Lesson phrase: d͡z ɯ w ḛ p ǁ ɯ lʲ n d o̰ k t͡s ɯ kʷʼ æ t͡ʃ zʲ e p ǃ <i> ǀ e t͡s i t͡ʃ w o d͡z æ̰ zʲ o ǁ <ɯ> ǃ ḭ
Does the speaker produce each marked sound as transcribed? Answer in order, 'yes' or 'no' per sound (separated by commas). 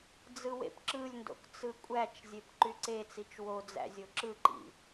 no, yes